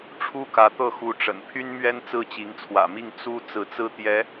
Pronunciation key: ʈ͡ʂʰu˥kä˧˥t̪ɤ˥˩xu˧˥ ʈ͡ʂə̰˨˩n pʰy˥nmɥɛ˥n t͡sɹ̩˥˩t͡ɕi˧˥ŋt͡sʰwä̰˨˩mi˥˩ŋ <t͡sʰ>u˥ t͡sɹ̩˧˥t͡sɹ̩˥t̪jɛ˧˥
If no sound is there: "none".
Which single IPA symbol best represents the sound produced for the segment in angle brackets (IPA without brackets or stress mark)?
t͡s